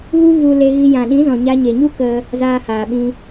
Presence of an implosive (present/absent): present